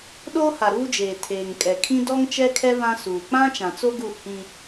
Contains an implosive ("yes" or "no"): yes